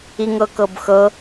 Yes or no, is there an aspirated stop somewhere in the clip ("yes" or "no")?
no